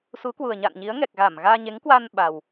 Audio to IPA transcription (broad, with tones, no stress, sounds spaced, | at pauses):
s u˨˦ k w u˨˩ ə̯ ɲ a̰˧˨ n ɲ i˨˦ ə̯ ŋ ɛ˨˩ k̚ ɣ a˧˩ m ɣ aː˧ ɲ e˨˦ ŋ k w a˧ n ɓ a˨˩ w